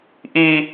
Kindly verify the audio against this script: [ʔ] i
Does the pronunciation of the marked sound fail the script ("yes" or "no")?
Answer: no